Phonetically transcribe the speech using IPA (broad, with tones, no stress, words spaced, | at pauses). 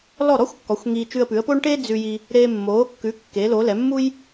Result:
lɔ˥˩ɾɔ˥xʷkːɔ˩˥xʷ ŋiː˧t͡ʃʉ˧ə̯pʉ˩˥ə̯poː˥ɳ ʈe˥d͡zʉ˧ji˧ | ɾeː˧mːoː˩˥kːʉ˩˥ kːe˩˥lo˩˥lɛ˩˥ mːu˥j